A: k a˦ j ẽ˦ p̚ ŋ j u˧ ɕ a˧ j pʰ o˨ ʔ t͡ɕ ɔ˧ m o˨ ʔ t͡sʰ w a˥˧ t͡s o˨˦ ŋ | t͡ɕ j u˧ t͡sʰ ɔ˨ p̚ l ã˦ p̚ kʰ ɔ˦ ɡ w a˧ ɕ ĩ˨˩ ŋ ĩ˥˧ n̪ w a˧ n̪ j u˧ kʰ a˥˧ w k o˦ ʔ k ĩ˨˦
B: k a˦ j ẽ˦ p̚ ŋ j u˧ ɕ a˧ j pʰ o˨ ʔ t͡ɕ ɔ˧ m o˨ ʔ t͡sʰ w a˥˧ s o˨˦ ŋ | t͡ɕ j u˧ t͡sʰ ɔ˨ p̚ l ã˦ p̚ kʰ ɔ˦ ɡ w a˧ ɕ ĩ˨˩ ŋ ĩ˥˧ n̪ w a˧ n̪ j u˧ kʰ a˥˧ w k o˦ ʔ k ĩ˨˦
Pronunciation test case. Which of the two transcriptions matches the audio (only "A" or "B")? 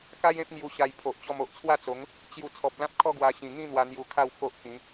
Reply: A